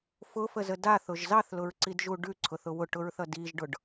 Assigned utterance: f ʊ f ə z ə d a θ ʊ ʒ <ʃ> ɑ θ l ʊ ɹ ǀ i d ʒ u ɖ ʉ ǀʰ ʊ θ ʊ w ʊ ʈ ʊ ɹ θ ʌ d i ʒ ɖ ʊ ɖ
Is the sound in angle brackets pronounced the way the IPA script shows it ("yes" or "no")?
no